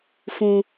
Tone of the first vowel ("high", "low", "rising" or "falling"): high